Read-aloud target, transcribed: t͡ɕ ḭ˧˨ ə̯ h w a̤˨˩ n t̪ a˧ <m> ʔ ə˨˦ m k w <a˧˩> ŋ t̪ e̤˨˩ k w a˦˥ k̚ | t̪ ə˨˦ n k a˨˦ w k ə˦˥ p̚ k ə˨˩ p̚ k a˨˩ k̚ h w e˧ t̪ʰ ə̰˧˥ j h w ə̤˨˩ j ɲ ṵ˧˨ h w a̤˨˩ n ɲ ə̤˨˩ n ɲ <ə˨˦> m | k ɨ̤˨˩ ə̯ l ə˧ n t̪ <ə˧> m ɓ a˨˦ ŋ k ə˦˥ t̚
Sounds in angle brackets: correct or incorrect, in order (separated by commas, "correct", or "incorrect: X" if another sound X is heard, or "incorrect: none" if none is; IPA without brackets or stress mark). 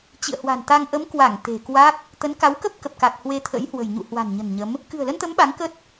incorrect: ŋ, correct, correct, incorrect: ə˨˦